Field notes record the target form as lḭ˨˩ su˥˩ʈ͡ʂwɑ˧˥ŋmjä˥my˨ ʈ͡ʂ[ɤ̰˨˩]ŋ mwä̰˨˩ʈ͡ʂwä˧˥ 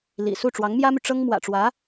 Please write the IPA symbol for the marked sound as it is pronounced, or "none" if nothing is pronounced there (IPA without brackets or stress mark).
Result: ɤ˥